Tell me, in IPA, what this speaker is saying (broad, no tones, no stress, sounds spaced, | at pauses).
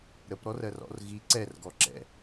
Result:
ɾ ə p ɾ ɔ r ɜ r ɔ̰ r ɣ i ǀ ɛ r ɡ ɔ ǁ ɛ̰